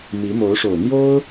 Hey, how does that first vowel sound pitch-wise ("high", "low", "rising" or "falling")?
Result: rising